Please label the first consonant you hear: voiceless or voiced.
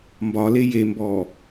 voiced